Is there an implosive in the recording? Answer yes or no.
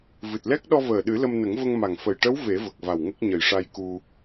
yes